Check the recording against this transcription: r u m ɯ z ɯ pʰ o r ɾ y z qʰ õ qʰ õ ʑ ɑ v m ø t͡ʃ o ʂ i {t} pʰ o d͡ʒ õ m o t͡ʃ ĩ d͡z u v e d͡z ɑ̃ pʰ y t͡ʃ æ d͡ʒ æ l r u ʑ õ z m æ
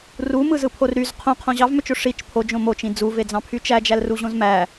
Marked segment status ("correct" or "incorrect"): incorrect